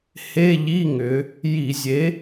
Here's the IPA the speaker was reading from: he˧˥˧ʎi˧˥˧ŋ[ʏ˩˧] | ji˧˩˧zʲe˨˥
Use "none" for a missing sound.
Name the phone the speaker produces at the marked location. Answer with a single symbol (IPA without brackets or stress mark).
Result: ʏ˩˧